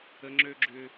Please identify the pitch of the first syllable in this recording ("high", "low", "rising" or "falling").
high